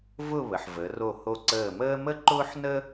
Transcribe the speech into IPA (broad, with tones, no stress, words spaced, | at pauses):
vʊ˥˧ βə˩˧ħvə˩˧ ro˧˩ho˧˩ǀəː˧˩məː˥ mə˥˧ǃʊː˥ħnə˥